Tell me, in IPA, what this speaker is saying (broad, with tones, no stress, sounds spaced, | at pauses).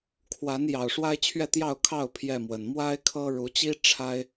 kʰ w a˨˦ n j ɑ˨˩ ʊ̯ ʂ w a˦ ɪ̯ t͡ɕʰ ɥ ɛ˥˨ t̪ j ɑ˥˨ ʊ̯ kʰ ɑ˥˨ ʊ̯ pʰ j ɛ˥˨ m w ə˨˩ n m w a˦ ɪ̯ kʰ ɤ˦ ɻ u˨˦ t͡ɕ i˦ ʈ͡ʂʰ a˦ ɪ̯